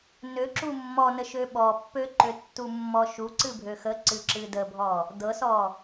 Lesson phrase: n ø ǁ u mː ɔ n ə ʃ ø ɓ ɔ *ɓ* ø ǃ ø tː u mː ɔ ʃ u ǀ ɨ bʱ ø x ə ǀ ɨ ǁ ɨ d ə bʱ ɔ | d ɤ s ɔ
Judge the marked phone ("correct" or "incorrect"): incorrect